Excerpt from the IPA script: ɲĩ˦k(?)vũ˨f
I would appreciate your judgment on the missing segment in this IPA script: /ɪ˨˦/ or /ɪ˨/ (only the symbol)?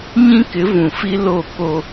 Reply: ɪ˨˦